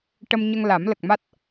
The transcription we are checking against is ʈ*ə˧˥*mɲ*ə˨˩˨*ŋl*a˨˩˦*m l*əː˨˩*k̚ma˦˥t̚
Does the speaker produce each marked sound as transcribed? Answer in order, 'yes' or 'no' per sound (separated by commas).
no, no, yes, no